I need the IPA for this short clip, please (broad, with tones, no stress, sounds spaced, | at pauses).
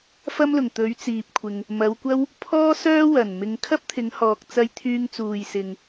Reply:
f ɐ˥ m l ʊ˨˩ ŋ t̪ ɵ˨˥ ɥ t͡s iː˨ p̚ kʷʰ ɪ˨ ŋ | m ɐ˨˧ w kʷ ɐ˥ w | pʰ ɔː˥ s œː˥ w ɐ˨˩ n m ɪ˧ ŋ kʰ ɐ˥ p̚ t̪ʰ ɪ˨˧ ŋ h ɔː˨ k̚ t͡s ɐ˧ j t̪ʰ yː˧ ŋ t͡s uː˨ j s ɪ˨ ŋ